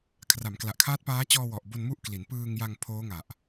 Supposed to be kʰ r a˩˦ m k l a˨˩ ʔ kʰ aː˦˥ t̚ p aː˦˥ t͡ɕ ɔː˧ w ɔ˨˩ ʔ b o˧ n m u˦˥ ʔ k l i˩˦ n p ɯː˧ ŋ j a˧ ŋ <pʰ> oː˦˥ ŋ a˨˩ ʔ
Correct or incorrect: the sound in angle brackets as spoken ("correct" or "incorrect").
correct